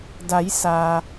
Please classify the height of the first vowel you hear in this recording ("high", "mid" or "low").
low